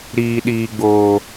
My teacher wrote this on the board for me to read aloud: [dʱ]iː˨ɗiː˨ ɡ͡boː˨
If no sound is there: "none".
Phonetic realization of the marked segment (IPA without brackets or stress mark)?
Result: ɾ